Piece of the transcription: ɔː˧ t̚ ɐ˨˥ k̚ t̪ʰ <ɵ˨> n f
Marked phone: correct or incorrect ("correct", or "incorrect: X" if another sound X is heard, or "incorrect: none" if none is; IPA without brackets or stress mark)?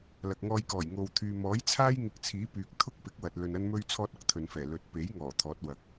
correct